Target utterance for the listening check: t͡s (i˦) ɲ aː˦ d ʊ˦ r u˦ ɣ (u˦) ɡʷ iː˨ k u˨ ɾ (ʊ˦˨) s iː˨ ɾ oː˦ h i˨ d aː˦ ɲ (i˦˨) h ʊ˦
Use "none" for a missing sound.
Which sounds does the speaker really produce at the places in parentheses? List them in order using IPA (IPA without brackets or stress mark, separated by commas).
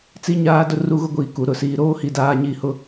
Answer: i˦, ʊ˦, ʊ˨, i˦˨